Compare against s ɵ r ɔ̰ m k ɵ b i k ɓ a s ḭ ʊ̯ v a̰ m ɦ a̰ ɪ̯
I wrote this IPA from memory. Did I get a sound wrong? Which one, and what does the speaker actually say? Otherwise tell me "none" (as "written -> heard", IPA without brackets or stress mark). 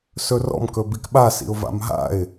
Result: none